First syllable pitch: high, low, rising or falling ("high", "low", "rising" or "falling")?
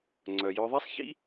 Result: low